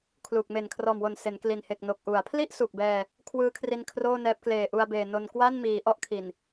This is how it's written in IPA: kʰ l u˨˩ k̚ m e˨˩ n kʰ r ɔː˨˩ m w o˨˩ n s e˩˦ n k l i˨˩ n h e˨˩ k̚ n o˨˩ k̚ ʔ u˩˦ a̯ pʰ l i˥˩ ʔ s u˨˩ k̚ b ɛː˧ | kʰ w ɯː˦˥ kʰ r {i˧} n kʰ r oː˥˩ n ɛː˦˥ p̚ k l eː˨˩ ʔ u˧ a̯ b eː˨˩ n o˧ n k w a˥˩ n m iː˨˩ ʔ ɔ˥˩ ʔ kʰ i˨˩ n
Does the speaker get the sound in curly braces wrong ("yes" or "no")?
no